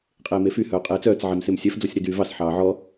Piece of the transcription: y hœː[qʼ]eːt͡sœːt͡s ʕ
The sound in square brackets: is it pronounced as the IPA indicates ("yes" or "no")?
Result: yes